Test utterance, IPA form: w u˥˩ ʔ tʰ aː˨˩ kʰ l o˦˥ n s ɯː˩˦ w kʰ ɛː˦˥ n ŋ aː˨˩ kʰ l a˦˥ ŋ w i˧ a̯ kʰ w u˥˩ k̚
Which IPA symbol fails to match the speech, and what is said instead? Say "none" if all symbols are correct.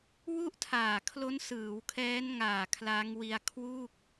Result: none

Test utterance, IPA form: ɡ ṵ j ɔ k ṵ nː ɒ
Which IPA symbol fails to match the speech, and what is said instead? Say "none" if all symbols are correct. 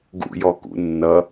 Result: ɒ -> ʌ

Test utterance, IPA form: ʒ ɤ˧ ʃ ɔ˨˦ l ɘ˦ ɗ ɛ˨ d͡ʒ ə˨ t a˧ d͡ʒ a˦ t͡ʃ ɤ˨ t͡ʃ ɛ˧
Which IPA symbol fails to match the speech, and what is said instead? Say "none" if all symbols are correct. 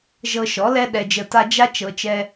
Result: ɘ˦ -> ɛ˦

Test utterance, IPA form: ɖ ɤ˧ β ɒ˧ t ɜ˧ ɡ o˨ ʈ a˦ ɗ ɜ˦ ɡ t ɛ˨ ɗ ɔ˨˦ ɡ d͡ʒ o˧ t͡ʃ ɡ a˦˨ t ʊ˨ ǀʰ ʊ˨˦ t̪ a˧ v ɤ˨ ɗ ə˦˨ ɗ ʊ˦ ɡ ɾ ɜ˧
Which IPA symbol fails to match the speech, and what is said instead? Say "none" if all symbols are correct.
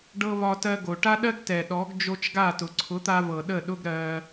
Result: none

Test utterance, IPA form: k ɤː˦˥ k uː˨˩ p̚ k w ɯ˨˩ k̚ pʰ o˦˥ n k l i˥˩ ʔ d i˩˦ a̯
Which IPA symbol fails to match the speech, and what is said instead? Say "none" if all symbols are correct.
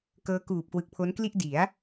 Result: none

